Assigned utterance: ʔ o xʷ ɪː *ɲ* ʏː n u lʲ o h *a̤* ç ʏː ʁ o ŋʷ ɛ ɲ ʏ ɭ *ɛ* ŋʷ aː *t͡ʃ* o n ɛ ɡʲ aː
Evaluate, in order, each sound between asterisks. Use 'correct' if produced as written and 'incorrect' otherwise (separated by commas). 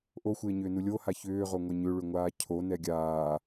correct, incorrect, incorrect, incorrect